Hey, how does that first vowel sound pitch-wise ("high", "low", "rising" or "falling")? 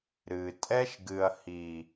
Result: low